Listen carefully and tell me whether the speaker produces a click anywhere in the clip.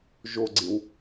yes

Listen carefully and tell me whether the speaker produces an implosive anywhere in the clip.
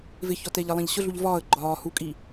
no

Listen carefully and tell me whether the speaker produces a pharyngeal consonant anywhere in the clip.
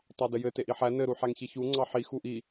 yes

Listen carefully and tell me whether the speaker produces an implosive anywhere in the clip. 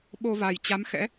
yes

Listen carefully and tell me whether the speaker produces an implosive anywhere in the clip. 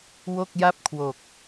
no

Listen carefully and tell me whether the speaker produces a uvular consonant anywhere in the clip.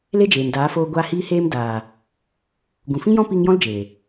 no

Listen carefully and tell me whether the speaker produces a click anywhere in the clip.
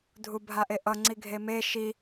yes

